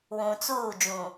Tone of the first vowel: low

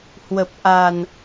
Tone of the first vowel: low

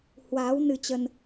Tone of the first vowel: rising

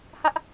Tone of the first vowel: high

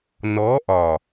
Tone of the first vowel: rising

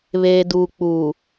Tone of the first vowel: low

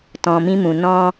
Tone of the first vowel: low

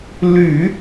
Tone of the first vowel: low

